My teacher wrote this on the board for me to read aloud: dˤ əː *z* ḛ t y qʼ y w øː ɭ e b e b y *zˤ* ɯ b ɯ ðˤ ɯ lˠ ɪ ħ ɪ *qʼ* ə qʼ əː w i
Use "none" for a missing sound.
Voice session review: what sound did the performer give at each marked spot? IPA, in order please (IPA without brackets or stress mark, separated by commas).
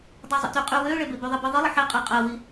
zˤ, ðˤ, qʼ